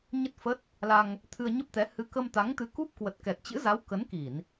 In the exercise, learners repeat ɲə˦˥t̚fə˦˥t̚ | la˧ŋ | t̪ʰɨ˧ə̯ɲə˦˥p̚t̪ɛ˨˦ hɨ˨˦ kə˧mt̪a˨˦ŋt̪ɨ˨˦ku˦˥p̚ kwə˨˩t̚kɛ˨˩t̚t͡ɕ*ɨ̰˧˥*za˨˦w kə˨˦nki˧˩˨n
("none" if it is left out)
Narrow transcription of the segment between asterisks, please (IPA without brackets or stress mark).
ɨ̰˧˥